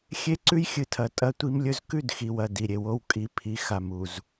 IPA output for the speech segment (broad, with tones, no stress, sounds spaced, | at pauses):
xʲ e˦ ǀ ʉ˦ j xʲ ɨ˨ tʰ ɐ˨ tʼ ɐ˦ tʷ i˦ m lʲ ɵ˦ z k ʉ˦˨ d x i˨ w ɐ˨ d i˨ ɾʲ e˨ w o˦ w kʼ i˨ pʰ i˨ x a˨ m u˨ z